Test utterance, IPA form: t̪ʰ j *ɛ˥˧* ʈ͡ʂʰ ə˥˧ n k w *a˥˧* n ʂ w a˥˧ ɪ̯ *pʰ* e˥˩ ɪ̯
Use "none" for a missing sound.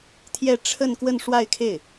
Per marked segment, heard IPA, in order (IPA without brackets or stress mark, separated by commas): ɛ˥˧, ə˥˧, kʰ